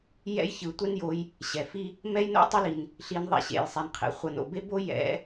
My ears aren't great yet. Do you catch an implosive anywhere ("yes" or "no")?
no